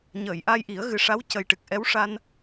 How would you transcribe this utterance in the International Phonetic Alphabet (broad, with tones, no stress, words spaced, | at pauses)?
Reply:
ɲəː˨˩˨jʔa˧j ʔi˨˩˦ə̯ɣɨ˨˩ ʂa˧˥wcə˨˩jʈɨ˨˩k̚ ʔɛ˧˥wʂa˧n